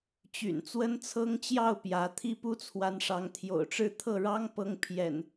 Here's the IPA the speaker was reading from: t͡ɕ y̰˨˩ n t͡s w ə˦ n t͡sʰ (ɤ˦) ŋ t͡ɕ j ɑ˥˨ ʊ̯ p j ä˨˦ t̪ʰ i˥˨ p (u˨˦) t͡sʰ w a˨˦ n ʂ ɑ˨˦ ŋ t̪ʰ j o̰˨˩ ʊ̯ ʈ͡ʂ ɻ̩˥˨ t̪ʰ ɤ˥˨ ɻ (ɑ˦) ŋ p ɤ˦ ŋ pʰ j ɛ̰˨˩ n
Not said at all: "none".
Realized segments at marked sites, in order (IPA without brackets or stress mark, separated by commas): ɤ˦, u˦, ɑ˦